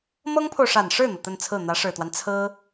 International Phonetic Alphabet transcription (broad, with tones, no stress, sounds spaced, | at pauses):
m ɤ˥ ŋ pʰ o˨ ʊ̯ ʂ a˨˩ n ʂ ɻ̩˥˩ n̪ ɤ˩ t̪ ə˥˧ n t͡sʰ ɹ̩˥˩ n̪ ä˧˥ ʂ ɻ̩˨˩ t̪ w a˦ n t͡sʰ ɹ̩˥